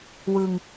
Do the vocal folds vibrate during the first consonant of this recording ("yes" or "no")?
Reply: yes